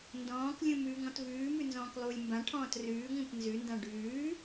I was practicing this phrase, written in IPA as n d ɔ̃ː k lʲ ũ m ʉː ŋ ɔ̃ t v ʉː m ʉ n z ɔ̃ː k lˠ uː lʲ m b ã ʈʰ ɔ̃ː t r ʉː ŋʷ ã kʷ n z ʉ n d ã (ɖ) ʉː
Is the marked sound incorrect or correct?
correct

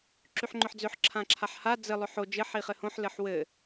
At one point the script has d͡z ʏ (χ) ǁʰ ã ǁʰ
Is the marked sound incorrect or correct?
incorrect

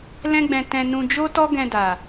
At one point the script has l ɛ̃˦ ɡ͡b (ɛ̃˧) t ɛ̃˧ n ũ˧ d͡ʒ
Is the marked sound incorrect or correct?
correct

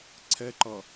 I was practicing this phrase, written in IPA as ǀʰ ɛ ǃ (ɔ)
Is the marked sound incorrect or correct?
incorrect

